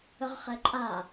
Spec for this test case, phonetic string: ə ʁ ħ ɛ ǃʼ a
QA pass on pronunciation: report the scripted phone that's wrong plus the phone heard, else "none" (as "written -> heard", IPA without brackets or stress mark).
ħ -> χ